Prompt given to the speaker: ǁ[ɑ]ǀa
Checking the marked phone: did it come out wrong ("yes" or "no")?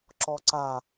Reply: yes